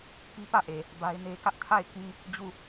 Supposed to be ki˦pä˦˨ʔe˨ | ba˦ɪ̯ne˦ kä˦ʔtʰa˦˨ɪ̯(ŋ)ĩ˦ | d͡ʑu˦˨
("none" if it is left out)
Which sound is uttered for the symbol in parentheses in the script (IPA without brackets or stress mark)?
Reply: k